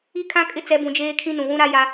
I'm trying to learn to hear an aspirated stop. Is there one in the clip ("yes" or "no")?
yes